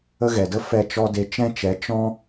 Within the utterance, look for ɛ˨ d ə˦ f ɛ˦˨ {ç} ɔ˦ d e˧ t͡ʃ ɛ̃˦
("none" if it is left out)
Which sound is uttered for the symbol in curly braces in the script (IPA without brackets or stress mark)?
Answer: t͡ʃ